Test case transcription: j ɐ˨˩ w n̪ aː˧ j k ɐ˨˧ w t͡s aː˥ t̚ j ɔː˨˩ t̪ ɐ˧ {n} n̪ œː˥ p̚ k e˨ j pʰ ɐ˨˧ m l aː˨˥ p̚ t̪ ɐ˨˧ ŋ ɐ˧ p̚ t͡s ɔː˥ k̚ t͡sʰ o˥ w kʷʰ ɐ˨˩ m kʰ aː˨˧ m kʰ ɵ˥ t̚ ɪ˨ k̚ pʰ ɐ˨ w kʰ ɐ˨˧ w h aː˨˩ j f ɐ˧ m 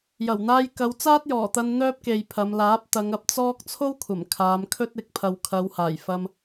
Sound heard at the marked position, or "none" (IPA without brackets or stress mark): n